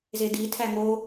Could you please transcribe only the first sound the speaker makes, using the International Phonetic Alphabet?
z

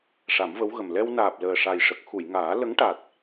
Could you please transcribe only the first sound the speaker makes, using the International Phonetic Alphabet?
ʂ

